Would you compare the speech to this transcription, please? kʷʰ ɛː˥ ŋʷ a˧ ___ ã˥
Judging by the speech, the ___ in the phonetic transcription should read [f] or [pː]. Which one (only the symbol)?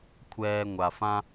f